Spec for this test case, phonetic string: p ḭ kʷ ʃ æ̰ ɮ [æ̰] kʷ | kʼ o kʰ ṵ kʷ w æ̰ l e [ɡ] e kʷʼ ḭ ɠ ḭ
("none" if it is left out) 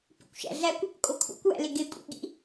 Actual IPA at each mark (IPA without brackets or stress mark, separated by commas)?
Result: æ, ɡ